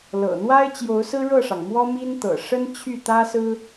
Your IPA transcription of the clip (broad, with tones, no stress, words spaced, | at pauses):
lɤ̰˨˩n̪wa˥ɪ̯ t͡ɕjo˧˥ʊ̯sɹ̩˥ɻɤ˥˩ʂɑ˩ŋ mwɔ˥mi˥nt̪ɤ̰˨˩ ʂə˥n t͡ɕʰy˥˩t̪ä˥sɹ̩˥